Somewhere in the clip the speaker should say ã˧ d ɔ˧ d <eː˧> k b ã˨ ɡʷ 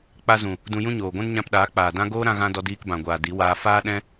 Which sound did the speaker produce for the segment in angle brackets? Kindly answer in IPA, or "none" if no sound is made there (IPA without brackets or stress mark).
iː˧